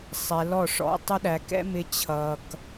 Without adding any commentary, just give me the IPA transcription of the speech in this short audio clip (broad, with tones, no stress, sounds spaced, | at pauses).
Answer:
sˤ ɛː˧ l ɔ˦˨ ʂ ɔ̰˦ tˤ ʌ˦ ɗ æ˧ k ɛ̰˦ m ɪ˦ t͡ɕʰ ʌː˦ k